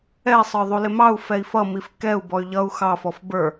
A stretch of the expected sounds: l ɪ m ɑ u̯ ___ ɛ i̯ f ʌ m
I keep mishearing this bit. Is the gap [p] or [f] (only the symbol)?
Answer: f